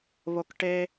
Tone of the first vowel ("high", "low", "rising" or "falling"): low